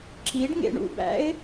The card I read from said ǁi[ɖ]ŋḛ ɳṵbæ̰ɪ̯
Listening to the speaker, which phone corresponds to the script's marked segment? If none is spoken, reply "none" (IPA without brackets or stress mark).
ɖ